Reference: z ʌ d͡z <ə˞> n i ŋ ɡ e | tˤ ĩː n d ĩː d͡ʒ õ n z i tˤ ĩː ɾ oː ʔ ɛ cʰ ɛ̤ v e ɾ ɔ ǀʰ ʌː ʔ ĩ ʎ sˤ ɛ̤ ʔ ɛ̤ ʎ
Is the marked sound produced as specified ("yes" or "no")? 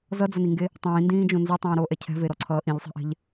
no